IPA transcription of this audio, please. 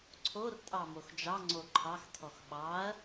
ǀʰ o r tʼ ɑ m o x d͡ʒ ɑ ŋ͡ǀ o ǃʰ ɑ x tʰ ɔ x ɓ ɑ ɐ̯

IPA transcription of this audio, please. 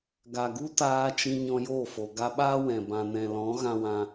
ɡ a˨ ɡ u˧ t aː˧ t͡ʃ ĩ˧ ɲ ɔ̃˧ j o˦˨ f o˨ ɡ a˧ ɓ aː˦ w ɛ̃˨ b ã˨ n ɛ̃˨ l ɔ̃˨˦ ɣ ã˧ w ã˧

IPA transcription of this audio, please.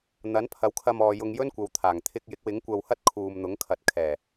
n̪ ɐ˨˥ n pʰ ɐ˨˥ w kʰ ɐ˧ m ɔː˨ j ʊ˧ ŋ j ɵ˥ n kʷ ɐ˨˧ w t̪ʰ aː˨˩ ŋ t̪ʰ ɪ˧ k̚ j ɪ˨˥ k̚ w ɪ˨˥ ŋ kʷ ɐ˧ w h ɐ˥ t̚ kʰ uː˨ m n̪ ʊ˨˥ ŋ kʰ ɐ˨ t̚ kʰ ɛː˨˩

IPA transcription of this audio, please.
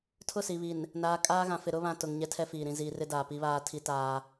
tʰ ʊ˦˨ s i˨ β i˨ n | n aː˨ kʼ aː˦ ɣ ã˨ f ɪ˨ ɾ ʊ˦ β ã˨ t ʊ˨ ŋ ɲ ɛ˦ tʰ ɛ˦ f iː˨ ɾ ĩ˨ z iː˨ r ɪ˦ d aː˨ p i˦ β aː˦ tʰ i˦ t aː˦

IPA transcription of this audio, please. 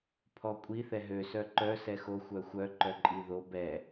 pʰ ɔ kʷʼ i θ ɛ ɦ ø s œ ǃ œ s ɛ x o xʷ œ xʷ œ ǃ œ ǃʼ i ð o b ɛ

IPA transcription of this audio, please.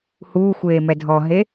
h uː xʷ eː m ɛ dʱ ɔ ɦ e

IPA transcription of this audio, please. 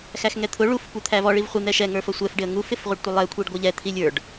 x æ x ŋ ɛ t̪ʰ ʊ ɭ u f kʷ ə˞ t̪ʰ æ v ɔ ɭ i v χʷ i n̪ ɛ ʃ ɛ ŋ ə˞ f ʌ sʷ ɛ f ɖ ɪ ə̯ ŋ u f ɪ f ʁʷ ə ɖ tʷ ɪ lˠ ɛ kʷʰ i ɖ ɡʷ ə˞ ʎ ɛ t̪ʰ i lʲ ə˞ ɖ

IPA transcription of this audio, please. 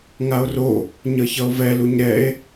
ŋ a o̯ r o | ɲ ʌ ç ʌ o̯ v ɛ l u ɲ ɾ ɛ e̯

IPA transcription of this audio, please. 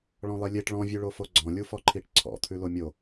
ɭ ɔ̃ lˠ i lʲ e ʈ ɭ ɔ̃ vʲ ʉ ɭ o f o ɡ͡ǀ ɔ̃ lʲ u f ɔ ǃʰ i ʈ ǀʰ ɔ̰ t̪ʰ ʉ l o mʲ o

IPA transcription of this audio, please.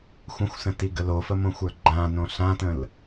xʷ ə̃ xʷ s ə̃ t i ɡ ə l o f ə m õ xʷ ə˞ ɡ͡ǃ ã n õ ɬ ã t ə̃ l

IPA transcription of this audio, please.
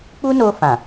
k͡p u˦ n o˧ f ã˨

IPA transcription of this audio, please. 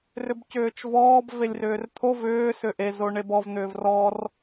r ʏ b c ʏː t͡ʃ v ɔː b v e lʲ r ʏː r t̪ʰ o v ʏː s ʏ ʔ e z o ɳ e b ɔ v n̪ ʏː v r ɔ r

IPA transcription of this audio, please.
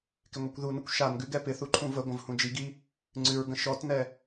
k ɪ ŋʷ i kʷ ð u n ə kʷ ʃ a n ɡ ʉ ɡ ɛ p ɪ θ u ǃʰ ũ v ə ɡʷ ə̃ v h ũ d͡ʒ i ɡ i | ŋ͡ǀ ʉ ɹ ɡ ə̃ ʃ ɔ t n ɛ

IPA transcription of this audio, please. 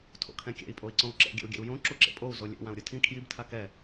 tʰ o̰ kʰ ɛ̃ kʲ ɛ̰ i̯ pʼ o i̯ ǀ õ u̯ ǁ ɛ̰ ɡʲ ɛ̰ u̯ ɡʲ ɛ̰ u̯ j õ ǁ u ǁ ḛ pʼ o u̯ z o lʲ ḛ w ã u̯ ɾʲ ɯ tʰ ĩ kʰ j i b tʰ a k ɛ

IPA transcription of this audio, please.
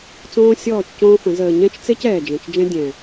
t͡s õː˦ sʲ ɔː˦˨ t͡ʃ c õː˦ f ə̃˨˦ z əː˨ ɲ ɛ̃˦ t͡ʃ t͡s e˦ c ɛː˨ d͡ʒ ɛ̃˨ t͡ʃ d͡ʒ ɛ̃˦ dʲ ɛ̃˨

